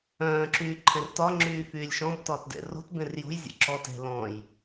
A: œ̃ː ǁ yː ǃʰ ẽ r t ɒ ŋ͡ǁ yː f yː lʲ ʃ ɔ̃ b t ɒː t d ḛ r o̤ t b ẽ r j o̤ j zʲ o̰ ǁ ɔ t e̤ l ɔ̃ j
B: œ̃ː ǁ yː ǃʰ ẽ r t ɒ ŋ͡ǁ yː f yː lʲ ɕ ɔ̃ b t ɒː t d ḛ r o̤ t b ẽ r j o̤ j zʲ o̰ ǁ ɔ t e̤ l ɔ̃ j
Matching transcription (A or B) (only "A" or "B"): A